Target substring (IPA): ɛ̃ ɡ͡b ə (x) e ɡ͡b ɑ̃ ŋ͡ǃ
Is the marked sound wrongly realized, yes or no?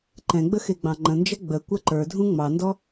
no